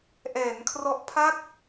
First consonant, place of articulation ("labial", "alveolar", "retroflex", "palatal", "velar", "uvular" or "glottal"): glottal